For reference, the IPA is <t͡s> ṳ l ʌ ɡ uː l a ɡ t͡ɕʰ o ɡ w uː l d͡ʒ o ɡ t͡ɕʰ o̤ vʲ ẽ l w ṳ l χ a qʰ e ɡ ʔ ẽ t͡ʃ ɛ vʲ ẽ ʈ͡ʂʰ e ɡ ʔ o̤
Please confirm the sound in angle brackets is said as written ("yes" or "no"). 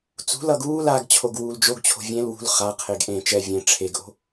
yes